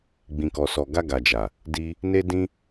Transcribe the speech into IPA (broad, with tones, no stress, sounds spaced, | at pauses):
ɡ͡b ĩ˨ k ɔ˨ s ɔ˨ ɡ a˧ ɡ a˨ d͡ʒ a˨ | d i˧ | n e˧ d ĩ˦